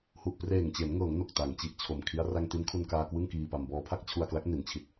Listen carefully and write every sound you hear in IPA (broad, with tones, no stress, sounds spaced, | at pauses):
h u˨˩ ʔ p r eː˨˩ ŋ t͡ɕ e˩˦ n ŋ ɤː˩˦ ŋ n o˨˩ k̚ t a˩˦ ŋ t͡ɕ i˨˩ ʔ t͡ɕʰ o˨˩ m kʰ i˦˥ a̯ r a˧ ŋ t i˦˥ n kʰ u˧ n k aː˧ k w ɯ˥˩ ŋ k iː˧ p a˧ m b ɔː˧ pʰ a˥˩ k̚ t͡ɕʰ u˧ a̯ k l a˦˥ k̚ n i˩˦ n t͡ɕʰ i˨˩ t̚